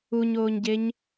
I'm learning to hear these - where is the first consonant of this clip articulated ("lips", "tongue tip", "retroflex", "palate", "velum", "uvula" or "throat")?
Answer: palate